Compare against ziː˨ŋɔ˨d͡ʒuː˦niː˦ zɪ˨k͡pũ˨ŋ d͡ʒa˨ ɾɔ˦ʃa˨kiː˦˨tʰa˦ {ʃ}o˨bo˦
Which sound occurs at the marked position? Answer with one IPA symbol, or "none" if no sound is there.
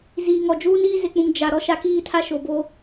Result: ʃ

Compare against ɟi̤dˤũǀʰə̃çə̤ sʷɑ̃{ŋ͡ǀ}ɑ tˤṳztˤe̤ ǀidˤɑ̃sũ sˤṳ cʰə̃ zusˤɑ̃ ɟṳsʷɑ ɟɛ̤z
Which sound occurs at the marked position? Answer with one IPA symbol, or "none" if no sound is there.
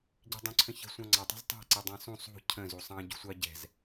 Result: ŋ͡ǀ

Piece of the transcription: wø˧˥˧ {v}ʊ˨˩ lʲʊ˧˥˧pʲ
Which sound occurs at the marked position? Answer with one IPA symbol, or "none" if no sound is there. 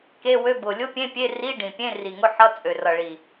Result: b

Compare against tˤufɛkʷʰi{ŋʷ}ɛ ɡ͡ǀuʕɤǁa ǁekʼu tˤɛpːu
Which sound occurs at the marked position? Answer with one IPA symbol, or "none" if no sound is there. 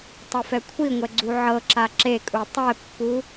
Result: ŋʷ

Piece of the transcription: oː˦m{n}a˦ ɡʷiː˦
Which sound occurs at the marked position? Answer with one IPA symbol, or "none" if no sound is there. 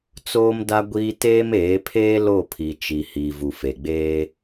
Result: d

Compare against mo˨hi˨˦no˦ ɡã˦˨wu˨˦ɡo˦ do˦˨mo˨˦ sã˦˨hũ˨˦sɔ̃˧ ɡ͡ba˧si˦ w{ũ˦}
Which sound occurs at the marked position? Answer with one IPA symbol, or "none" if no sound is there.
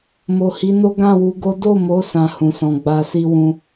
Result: ũ˧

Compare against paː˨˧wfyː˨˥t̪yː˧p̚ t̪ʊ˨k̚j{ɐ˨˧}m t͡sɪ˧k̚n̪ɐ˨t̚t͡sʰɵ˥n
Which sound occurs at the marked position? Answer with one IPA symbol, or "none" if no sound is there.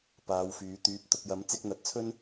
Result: ɐ˨˥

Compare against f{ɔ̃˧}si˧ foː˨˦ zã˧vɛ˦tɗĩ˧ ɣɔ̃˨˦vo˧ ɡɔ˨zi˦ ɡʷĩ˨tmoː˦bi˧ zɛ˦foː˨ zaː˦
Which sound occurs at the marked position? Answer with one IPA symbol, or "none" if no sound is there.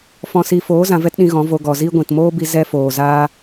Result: ɔ̃˧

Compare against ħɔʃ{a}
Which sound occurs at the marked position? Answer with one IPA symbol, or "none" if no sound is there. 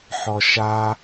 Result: a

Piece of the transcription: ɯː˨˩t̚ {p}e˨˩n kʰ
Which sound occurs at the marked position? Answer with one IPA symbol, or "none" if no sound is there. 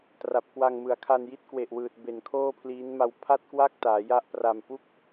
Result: b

